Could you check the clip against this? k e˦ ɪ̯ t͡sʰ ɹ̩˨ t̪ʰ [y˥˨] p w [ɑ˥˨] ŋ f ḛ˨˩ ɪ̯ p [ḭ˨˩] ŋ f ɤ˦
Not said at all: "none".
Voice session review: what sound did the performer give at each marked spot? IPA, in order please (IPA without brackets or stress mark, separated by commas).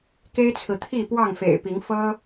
i˥˨, ɑ˥˨, i˨˦